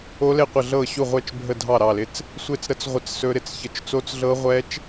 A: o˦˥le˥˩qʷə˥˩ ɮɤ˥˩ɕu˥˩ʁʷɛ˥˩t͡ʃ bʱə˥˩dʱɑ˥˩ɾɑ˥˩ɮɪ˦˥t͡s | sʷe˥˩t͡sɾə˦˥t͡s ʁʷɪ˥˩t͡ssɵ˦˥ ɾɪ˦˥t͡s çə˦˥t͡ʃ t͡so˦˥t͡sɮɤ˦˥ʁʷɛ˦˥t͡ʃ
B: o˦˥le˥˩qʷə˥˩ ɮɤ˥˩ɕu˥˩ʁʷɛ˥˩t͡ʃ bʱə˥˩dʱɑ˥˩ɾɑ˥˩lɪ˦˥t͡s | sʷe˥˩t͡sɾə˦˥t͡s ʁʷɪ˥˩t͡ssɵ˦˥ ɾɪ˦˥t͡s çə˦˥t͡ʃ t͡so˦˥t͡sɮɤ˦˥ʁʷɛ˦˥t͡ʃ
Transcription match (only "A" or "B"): B